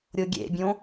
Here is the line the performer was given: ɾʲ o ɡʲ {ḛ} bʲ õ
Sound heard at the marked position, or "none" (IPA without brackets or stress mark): ḛ